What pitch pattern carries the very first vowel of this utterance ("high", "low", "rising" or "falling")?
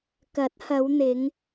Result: rising